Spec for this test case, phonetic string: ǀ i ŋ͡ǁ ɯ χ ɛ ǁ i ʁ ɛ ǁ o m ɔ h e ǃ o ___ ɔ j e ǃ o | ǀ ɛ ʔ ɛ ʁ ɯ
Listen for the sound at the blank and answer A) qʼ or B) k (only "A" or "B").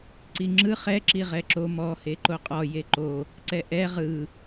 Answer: A